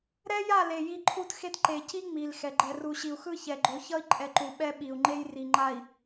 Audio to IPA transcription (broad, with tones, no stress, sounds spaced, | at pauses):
ɾ ɛ˦ j a˦˨ l e˨ j i˦ ǃʰ u˦ t x e˦ t ǃ e˨ c i˦ ŋ͡m i˨ l x ɛ˨ ɡ͡ǃ ɛ˨ r u˨ ɕ i˨ u̯ x ɯ˦˨ ç ɛ˨ ɡ͡ǃ o˨˦ ç ʌ˦ i̯ ǃʼ ɛ˨ ǃ u˨ ɓ ɛ˦ ɓ i˨ u̯ ŋ͡ǃ e˦ j r i˨ ŋ͡ǃ a˨ i̯